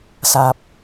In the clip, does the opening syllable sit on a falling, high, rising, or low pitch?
low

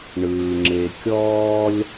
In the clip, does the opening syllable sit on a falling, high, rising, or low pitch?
low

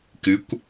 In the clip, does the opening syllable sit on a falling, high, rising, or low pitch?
rising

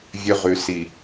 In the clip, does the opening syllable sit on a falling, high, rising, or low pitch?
high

